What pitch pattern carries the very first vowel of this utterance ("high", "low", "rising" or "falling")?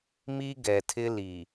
high